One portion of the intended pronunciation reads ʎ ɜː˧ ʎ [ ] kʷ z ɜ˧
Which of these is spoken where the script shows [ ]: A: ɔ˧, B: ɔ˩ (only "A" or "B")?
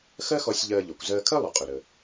B